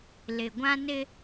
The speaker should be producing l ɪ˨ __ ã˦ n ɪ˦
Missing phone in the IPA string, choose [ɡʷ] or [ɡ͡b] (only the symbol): ɡʷ